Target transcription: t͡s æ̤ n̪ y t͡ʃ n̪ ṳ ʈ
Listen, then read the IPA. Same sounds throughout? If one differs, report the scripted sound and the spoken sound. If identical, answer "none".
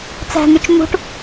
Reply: none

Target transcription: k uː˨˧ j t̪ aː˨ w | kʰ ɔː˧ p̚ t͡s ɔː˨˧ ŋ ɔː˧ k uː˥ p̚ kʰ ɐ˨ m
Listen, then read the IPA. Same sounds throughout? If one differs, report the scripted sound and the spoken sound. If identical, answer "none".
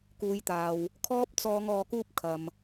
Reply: none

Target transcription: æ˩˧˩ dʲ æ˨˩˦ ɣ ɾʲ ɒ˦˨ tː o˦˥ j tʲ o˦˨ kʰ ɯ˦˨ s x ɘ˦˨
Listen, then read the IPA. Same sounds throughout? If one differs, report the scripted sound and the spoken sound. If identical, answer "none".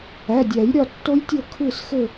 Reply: ɣ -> j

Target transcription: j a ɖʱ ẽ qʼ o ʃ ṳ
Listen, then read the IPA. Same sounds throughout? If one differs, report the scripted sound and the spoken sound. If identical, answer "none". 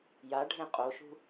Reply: none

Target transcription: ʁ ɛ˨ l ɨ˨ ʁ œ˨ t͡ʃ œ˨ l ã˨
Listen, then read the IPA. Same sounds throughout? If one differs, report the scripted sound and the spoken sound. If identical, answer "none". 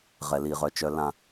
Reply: ɨ˨ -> i˨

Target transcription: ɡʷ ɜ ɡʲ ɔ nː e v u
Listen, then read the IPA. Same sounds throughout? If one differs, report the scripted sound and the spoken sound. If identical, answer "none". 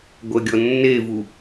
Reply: none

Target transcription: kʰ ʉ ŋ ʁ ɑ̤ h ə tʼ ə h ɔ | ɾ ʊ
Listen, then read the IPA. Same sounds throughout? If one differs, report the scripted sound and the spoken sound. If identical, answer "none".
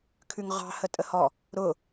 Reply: none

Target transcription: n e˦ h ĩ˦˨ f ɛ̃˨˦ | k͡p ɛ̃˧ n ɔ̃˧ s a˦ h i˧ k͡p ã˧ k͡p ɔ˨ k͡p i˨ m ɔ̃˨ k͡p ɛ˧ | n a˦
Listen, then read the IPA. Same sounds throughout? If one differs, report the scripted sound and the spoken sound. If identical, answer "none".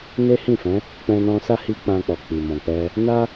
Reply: none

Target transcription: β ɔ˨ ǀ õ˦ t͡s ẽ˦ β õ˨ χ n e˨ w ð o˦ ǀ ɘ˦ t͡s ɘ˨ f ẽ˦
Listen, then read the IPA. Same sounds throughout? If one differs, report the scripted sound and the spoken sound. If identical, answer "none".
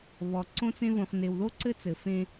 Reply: none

